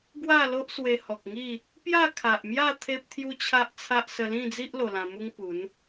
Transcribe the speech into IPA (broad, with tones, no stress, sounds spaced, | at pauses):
ɡ w a˥˧ l o˦ ʔ s w e˧ h ɔ˨ k̚ ŋ i˥˧ | p j a˥˧ kʰ a˨ ʔ m j a˥˧ t̪ʰ e˦ p̚ t̪ʰ j u˦ t͡ɕʰ a˦ ʔ t͡sʰ a˦ ʔ s ə˧ l ĩ˥˧ d͡z i˦ ʔ l o˧ l ã˧ m u˦ ŋ p u˨˦ n